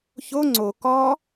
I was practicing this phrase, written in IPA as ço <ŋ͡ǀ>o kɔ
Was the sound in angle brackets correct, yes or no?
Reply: yes